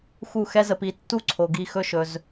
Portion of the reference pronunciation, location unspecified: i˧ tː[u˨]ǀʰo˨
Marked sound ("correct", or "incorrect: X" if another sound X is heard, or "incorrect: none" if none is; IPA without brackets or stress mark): incorrect: u˦